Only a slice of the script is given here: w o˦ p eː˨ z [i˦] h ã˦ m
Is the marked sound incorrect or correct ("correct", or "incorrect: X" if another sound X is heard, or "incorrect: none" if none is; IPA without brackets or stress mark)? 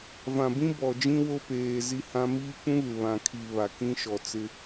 correct